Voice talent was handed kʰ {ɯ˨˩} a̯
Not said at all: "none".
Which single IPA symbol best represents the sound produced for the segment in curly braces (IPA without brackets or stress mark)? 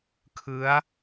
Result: ɯ˦˥